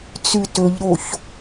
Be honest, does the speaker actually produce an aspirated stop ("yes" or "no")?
no